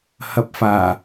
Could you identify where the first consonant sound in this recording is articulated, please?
glottal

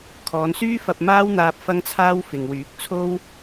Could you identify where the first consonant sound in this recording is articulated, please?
velar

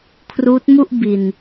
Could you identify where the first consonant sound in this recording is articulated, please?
velar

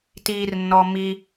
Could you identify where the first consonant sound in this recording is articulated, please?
alveolar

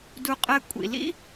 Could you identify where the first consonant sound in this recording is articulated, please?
alveolar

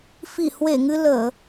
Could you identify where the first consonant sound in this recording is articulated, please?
labial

